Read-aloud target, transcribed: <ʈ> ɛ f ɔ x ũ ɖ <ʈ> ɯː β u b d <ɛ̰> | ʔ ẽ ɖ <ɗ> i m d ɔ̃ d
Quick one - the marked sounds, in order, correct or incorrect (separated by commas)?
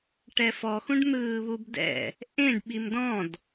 correct, incorrect, correct, incorrect